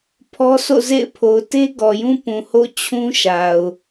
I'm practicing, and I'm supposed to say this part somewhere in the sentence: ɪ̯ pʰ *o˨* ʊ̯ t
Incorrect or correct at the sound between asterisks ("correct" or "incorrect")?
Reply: correct